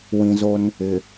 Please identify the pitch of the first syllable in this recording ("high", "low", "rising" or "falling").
low